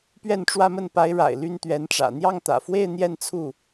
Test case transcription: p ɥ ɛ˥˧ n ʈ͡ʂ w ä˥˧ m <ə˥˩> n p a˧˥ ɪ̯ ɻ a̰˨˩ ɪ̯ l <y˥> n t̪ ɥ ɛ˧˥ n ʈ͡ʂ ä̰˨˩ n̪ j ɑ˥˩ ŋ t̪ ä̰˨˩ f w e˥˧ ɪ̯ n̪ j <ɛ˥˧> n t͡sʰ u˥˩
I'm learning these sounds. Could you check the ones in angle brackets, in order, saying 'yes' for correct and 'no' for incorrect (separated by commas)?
yes, yes, yes